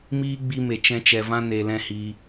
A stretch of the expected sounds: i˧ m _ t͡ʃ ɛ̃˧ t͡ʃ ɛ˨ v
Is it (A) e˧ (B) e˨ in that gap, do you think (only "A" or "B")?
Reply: B